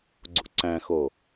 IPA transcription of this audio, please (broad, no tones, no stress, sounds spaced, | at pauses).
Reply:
ɡ͡ǀ ṵ ǀ æ̃ x o